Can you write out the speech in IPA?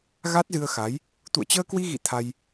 ɣ a˦˥ t̚ z ɨ˧ ə̯ x a˨˦ j | t̪ ṵ˧˨ ə̯ t͡ɕ əː˧ k w i˧ ɣ ḭ˧˨ t̪ʰ a˧ j

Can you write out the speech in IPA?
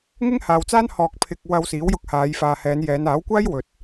ŋ ɪ˥ ŋ h aː˨ w t͡s aː˥ n h ɔː˨ k̚ pʰ ɪ˨ k̚ w ɐ˧ w s iː˨˥ w j ʊ˧ k̚ h aː˨˧ j f aː˨ h ɛː˨˧ n j ɛː˨˧ n aː˨˥ w kʷ aː˥ j w ɵ˨ t̚

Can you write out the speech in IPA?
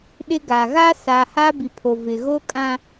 ɗ ɪ˦ ɡ a˨ ɣ a˦ s a˨ h a˦ b i˨ pʰ o˨ v ɪ˨ ɣ o˦ kʼ ã˦

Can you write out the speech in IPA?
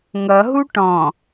ŋ ʌ ɦ u ʈ ɔ̃

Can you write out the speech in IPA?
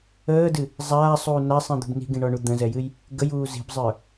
əː d ɨ | zˤ aː sˤ uː n a sˤ ĩ d̪ ṳ b n i̤ ɡ ĩ ɳ ɔ ɳ u d̪ ə̃ z ɛ j ɨ j | ɡ ə j uː z i̤ b zˤ ə˞

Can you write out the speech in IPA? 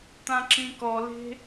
t̪ ã ǁ ĩ k ɔ l e̤

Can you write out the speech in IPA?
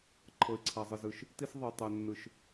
ǃʰ ɤ˨ ɪ̯ ǀʰ a˨ zˤ ɯ˨ z ɯ˨ ʃ | t i˦ s ðˤ ɯ˨ tˤ ɛ˨ nː ɯ˨ ʃ

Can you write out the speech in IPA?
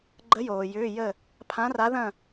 ɡ͡ǃ ə˧˥ j oː˨ j ʏː˧˥˧ j ə˥˧ | pʰ ã˧˥ r a˧˥ ð ɐ̃˥˧

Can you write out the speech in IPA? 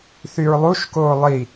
θ y ɹ lˠ u ʃ k oː lˠ i

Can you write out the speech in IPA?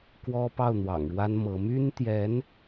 k w ɔ˥ p ɑ˥˩ ʊ̯ n̪ w ɑ̰˨˩ ŋ ɻ w a˥ n m ɤ˧˥ m y˥ n t̪ j ɛ˧˥ n

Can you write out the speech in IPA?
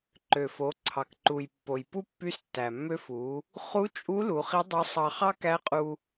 ǃ ø˩ f o˩˧ ǀʰ ɑ˩ k ǃ u˩ j pː o˩ j p u˥ pː y˧˥ s tː æ˩ mː ø˧ f u˩˧ | χ u˧˥ t͡ʃʼ u˧˥ l u˩˧ χ i˧˥ dˤ o˧˥ sˤ ɑ˧ χ ɑ˥ k æ˧˥ qʼ u˧

